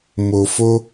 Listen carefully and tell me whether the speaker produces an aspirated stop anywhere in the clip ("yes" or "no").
no